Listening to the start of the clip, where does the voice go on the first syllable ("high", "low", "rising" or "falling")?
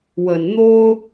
low